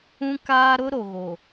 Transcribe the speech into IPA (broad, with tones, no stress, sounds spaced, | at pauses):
ũ˦ k aː˦ ɾ ʊ˦ ɾ o˨ ɣ o˨